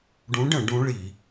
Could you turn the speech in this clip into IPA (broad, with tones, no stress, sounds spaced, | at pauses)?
ɖ ũ˧˥ ɖ ə̃˧˩˧ ɖ ũ˧˥ ɭ i˧˩˧